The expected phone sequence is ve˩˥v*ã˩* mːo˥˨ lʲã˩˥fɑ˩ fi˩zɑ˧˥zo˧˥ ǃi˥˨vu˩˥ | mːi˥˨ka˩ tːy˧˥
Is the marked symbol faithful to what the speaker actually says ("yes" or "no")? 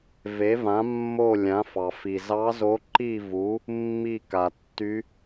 no